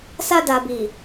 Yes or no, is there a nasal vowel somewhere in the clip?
no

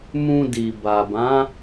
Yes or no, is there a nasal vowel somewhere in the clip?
yes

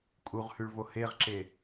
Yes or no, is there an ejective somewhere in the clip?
yes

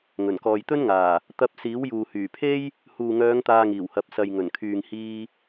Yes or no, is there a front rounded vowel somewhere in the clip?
yes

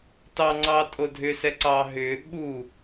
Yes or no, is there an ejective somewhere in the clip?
yes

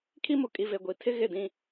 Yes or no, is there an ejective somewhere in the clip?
yes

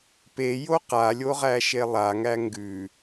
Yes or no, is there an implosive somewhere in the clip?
no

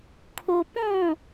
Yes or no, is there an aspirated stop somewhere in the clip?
yes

